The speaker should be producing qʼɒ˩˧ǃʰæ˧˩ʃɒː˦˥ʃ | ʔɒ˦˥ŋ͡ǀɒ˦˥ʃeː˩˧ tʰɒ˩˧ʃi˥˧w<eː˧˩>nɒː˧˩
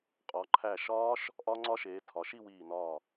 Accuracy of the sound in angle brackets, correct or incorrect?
incorrect